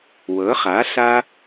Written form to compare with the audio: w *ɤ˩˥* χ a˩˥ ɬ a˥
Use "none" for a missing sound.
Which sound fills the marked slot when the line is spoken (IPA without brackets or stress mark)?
ɤ˩˥